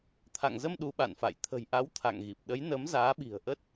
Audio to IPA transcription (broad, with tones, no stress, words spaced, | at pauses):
t̪ʰa̰˧˨ŋzə˧m ɗu˨˦ɓa̰˧˨nfa̰˧˨j t̪ʰə̤˨˩jʔa˨˦w t̪ʰa̰˧˨ŋɣi˨˩p̚ ɗə˨˦jnə˨˦m zaː˨˦ɓi̤˨˩ə̯ʔə˦˥t̚